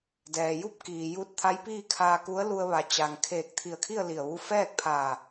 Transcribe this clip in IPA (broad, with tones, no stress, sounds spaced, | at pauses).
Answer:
d ɛː˩ j u˥˨ p̚ k iː˩ j u˧ t̚ t̪ʰ a˧˥ j p iː˥˨ kʰ aː˧ k u˧˥ ə̯ l u˧ ə̯ ʋ a˩˧ t͡ɕ a˩ ŋ kʰ eː˧˩ k̚ t̪ʰ i˧˩ ə̯ kʰ i˥˨ ə̯ l i˧˩ ə̯ ʋ u˥˨ f ɛː˥˨ k̚ pʰ aː˧˩